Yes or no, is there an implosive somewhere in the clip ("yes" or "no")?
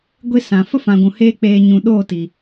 yes